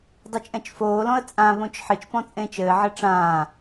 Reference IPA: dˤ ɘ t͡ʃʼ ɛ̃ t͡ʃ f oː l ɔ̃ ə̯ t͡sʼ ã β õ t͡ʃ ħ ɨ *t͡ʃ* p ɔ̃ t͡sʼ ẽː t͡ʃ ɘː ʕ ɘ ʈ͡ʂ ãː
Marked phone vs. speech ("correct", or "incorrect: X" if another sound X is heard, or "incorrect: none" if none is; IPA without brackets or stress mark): correct